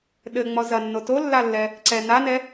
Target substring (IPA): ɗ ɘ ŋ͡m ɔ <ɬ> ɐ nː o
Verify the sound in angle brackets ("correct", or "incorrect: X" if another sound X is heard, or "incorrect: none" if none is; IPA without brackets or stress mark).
incorrect: z